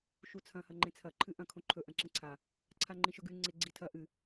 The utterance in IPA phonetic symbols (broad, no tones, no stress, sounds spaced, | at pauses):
ʃ u t͡sʰ ɐ̃ h ɐ ŋ͡ǃ ẽ t͡sʰ ɐ ǃʰ ɨ ʔ ɐ̃ kʰ õ ǃʰ ɵ ʔ ɐ̃ ǁ ẽ ǀʰ a | ǀʰ a ŋ͡ǃ ĩ ʃ ɵ ɡ ʉ ŋ͡ǀ e ɡ͡ǀ i tʰ ɐ ʔ ɨ